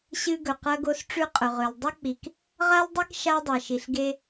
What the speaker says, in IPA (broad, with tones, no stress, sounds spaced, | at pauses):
ɕ ɨ˧ ɡ ɵ˨ q ɐ˧ ɡ o˧ s ʈ͡ʂ ʉ˧ qʼ ɵ˨ ʁ ɵ˨ l dˤ ɐ˧ k͡p i˨ k | ʁ a˦ l dˤ e˦ k ʃ a˧ dˤ a˨ ʃ i˨ ɬ ɡ e˧